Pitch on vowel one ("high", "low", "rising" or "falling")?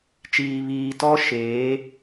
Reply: low